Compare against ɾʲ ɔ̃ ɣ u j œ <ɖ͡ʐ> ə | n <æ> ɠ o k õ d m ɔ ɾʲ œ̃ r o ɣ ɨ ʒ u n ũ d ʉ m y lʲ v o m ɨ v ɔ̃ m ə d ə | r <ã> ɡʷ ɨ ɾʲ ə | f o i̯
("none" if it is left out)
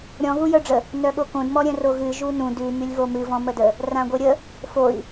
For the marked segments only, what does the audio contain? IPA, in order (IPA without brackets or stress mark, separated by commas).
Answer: ɖ͡ʐ, œ, ã